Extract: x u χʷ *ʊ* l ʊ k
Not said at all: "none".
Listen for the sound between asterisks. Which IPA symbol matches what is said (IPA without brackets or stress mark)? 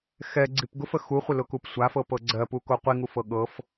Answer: ə